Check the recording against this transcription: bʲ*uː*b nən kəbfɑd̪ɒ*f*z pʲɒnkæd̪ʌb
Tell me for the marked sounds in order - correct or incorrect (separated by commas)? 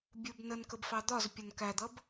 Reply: incorrect, incorrect